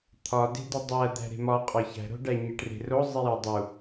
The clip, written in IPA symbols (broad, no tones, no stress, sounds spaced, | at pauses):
t̪ʰ ɒ d e̤ d i dˤ æ d̪ æ̤ ɾ e̤ m ɒ qʼ ɒ ç æ̤ ɾ o̤ ɖ æ ɲ e ʈ r e̤ r o zˤ i j ɒ dˤ u